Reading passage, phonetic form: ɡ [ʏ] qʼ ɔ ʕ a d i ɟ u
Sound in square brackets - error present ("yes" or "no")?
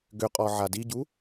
no